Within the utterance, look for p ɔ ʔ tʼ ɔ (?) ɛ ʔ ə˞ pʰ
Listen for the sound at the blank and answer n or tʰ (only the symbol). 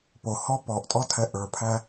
tʰ